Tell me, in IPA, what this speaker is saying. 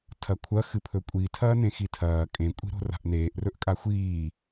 tʰɐkʷʰɐ xɨpʰɵkʷʼitʰɐː nẽxitʰɐː kʼẽkʷʼi̤ɾo̤ ra̤ʔneːʔrɵʔkʼa xʷiː

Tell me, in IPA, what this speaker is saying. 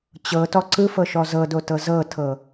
t͡ɕɤtɔ ǀɯfɤʃɔ zɤdotɤ zɤtʰɤ

